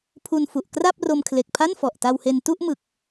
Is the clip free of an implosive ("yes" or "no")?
yes